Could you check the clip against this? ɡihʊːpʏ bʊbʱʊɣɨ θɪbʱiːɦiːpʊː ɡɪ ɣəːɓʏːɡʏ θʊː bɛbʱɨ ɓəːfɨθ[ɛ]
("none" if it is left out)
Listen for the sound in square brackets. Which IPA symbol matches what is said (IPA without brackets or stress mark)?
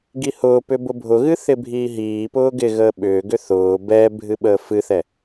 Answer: ɛ